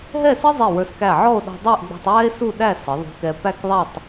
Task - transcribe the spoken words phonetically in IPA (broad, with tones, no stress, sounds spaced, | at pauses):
ɦ ɛ˥˧ s ə˥ zˤ i˧˩ w ə˞˧ s k æ˧˩ ʕ ɔ˥˧ o̯ ɗ ɔ̤˧ dˤ æ˥˧ ʔ ɡ͡b ɔ̤˧ tˤ w ɛ˥ e̯ s u˥˧ ɗ æ˥˧ s ə˩˧ ðˤ ṳ˧ k ɛ˧ p æ˥˧ k ðˤ æ˥˧ tˤ